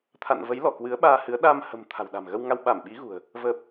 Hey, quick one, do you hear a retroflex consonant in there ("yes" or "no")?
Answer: no